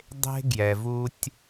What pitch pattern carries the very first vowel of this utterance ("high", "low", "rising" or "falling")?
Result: high